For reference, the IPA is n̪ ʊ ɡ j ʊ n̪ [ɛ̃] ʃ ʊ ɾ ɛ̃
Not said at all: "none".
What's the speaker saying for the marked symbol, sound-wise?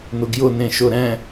ẽ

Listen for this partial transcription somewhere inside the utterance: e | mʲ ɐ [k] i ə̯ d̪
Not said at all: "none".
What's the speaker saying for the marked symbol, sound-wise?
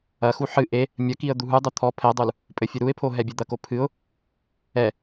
k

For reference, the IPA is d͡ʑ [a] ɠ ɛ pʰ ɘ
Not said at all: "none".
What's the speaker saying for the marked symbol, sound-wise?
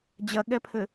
ɐ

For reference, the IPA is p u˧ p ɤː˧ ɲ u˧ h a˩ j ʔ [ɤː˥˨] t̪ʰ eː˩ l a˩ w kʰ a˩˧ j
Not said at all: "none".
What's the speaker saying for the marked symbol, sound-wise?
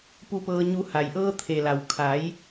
ɤː˧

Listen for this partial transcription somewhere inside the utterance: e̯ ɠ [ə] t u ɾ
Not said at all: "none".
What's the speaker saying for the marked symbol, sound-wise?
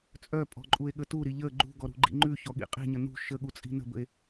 ə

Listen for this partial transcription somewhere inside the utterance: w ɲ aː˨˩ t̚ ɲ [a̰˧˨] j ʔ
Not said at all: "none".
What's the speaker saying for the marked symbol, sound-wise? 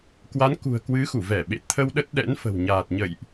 ə̰˧˨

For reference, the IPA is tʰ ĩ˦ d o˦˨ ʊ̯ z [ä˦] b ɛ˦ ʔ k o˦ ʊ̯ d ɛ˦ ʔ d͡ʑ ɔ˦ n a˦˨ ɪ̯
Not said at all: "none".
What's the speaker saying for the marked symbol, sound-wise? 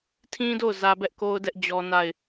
ä˦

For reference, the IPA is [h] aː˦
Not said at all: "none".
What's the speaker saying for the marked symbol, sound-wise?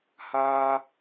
h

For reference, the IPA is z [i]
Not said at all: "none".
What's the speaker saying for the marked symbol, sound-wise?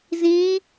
ĩ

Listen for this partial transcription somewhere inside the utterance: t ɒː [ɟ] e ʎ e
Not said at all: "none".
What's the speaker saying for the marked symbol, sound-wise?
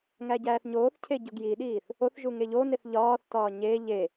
ɲ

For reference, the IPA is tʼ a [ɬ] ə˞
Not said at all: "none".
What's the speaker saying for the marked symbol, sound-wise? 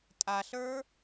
ɬ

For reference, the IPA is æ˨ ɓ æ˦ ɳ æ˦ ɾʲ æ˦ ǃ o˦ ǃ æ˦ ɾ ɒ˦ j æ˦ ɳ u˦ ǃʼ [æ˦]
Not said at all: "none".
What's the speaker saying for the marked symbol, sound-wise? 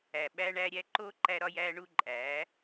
æ˨˦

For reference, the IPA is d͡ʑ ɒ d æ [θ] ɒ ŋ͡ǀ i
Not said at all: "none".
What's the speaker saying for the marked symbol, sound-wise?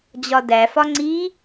f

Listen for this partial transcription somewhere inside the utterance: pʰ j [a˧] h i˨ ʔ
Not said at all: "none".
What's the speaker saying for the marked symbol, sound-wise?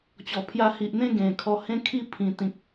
a˧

